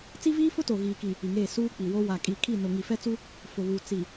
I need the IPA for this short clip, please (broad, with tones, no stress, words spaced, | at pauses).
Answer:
t͡si˦viː˦fʊ˦to˨ ɣiː˨ki˨ | i˨ŋeː˦˨ suː˦k͡pi˨wo˦ wa˨kʼi˨kʰi˦˨nʊ˨ ŋi˨fɛ˦t͡su˦ | fʊ˨βuː˨ t͡si˨